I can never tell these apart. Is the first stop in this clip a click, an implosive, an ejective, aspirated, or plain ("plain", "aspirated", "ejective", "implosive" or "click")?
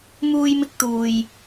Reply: plain